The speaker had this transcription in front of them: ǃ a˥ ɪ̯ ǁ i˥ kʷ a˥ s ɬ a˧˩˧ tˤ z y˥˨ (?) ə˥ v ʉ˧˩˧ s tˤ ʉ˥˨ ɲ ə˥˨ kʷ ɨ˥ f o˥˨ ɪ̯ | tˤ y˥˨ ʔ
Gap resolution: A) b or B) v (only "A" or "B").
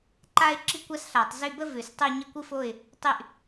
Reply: A